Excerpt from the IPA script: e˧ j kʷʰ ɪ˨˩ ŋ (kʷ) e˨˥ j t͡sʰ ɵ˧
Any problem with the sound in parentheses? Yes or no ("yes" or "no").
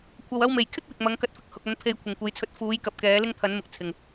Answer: no